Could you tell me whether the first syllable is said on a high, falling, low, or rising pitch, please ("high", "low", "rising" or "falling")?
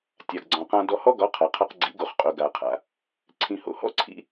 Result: low